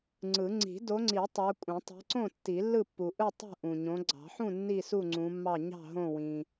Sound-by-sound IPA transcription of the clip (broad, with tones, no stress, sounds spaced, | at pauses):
ŋ͡ǀ ɯ˨˩˦ ŋ͡ǀ i̤˨˩˦ d o˨˦ ŋ͡ǀ i˨˩˦ tˤ ɑ˨˦ kʷʼ ẽ˨˩˦ tˤ i̤˨˦ ǀ õ˥˨ tː i˨˩˦ lː ɯ˥˨ pː u˨ ʔ ɯ˥˨ tˤ ṳ˥˨ ʔ ũ˨ ɲ õ˨˦ ɡ͡ǀ ɑ̤˨˩˦ ħ ũ˥˨ nː i˥˨ s u˥˨ ŋ͡ǀ ũ˨˦ mː ɑ˥˨ ɲ ɑ̤˥˨ ɦ õ˥˨ w ĩ˨